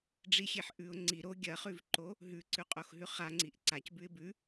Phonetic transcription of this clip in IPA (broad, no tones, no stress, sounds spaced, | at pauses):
ɖ͡ʐ i xʲ e ħ ʔ ʉ ʊ̯ ŋ͡ǀ i ɾ o ɡʲ ɐ χ ʉ v ǃ o | ɦ ʉ ǀ ʉ qʼ o x ɦ ʉ χ a ŋ͡ǀ i ʔ ǀ a c b ʉ ɪ̯ b ʉ